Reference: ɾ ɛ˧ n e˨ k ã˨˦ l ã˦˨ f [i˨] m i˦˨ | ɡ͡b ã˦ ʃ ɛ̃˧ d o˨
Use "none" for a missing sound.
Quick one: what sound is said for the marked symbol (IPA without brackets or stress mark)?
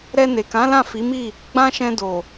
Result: i˨˦